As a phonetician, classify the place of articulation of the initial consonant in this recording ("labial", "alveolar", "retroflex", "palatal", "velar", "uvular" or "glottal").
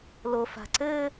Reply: alveolar